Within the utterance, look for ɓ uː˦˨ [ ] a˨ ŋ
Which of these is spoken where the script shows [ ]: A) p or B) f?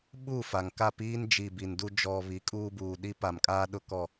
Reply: B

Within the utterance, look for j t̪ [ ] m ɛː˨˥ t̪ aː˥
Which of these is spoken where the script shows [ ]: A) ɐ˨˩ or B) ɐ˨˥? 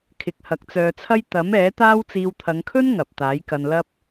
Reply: B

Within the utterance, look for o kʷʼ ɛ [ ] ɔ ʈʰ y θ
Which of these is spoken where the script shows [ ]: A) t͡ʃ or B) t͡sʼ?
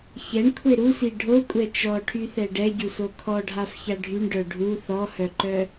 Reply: A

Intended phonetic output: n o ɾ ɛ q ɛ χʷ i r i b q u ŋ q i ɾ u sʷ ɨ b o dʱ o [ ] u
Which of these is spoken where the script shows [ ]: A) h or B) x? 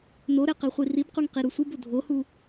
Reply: A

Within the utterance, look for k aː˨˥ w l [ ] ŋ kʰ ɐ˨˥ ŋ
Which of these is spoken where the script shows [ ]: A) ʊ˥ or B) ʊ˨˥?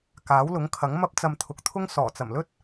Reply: B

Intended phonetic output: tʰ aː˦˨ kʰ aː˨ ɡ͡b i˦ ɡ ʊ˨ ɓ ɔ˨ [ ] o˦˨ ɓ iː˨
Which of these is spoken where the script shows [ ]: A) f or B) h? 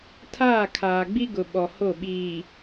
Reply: B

